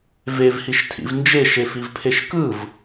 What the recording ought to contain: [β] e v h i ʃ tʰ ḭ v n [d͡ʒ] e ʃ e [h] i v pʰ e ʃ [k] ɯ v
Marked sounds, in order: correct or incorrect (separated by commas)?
incorrect, correct, incorrect, correct